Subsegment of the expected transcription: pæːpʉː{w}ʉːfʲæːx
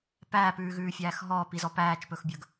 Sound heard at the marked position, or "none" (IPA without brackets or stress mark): ɣ